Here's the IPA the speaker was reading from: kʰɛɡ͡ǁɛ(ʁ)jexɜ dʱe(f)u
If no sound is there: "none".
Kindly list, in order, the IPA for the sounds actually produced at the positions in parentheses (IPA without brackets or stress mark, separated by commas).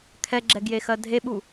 ɡ, ɓ